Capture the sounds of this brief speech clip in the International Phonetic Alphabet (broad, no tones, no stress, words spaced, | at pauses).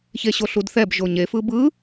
çeɕoɬudθɛb ʒoɲe fɯbɯ